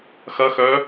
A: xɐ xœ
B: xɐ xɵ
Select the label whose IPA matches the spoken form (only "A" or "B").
A